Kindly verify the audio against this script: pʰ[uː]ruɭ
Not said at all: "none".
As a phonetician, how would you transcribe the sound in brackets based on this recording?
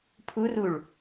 u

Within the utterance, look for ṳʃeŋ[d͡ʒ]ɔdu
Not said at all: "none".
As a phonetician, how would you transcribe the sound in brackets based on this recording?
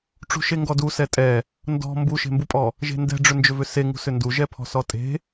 ɡ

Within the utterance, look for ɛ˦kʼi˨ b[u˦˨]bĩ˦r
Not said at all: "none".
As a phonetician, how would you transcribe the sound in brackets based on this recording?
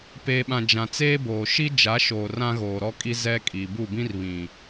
u˦˨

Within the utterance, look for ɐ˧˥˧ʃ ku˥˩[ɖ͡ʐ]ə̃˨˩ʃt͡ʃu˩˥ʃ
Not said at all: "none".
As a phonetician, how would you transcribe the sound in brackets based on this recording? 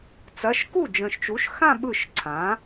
d͡ʒ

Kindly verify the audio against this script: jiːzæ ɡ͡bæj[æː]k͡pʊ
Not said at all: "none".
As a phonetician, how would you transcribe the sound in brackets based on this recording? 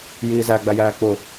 æː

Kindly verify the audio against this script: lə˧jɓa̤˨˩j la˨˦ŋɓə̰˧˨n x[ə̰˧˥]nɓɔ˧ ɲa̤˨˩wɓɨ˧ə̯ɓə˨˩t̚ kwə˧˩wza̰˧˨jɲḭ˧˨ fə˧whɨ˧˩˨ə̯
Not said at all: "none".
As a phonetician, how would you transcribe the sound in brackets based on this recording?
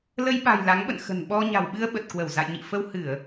ə̤˨˩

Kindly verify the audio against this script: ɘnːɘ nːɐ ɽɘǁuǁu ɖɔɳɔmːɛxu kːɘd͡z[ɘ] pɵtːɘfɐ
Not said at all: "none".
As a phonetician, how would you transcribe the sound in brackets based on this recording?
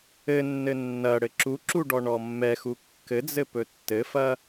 ɘ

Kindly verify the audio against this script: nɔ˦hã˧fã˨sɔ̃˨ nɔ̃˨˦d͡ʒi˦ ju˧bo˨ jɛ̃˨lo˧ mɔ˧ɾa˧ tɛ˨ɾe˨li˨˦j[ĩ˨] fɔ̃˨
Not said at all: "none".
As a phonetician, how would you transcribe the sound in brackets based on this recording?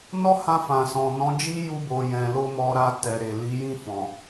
ĩ˦˨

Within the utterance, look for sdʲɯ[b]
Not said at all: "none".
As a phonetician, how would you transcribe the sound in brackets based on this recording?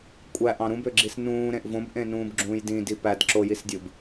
b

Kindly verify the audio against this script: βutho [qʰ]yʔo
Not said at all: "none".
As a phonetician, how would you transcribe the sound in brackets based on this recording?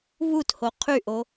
qʰ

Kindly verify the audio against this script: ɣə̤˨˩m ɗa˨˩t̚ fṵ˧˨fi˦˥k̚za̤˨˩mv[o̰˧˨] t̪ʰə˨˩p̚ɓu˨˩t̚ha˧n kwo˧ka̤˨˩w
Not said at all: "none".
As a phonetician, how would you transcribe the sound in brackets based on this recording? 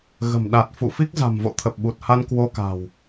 o̰˧˨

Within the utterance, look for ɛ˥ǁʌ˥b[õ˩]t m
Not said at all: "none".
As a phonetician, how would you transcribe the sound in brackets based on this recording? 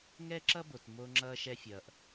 o˩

